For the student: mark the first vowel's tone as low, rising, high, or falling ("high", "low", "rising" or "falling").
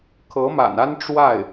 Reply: rising